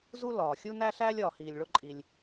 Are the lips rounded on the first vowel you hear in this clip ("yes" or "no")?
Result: yes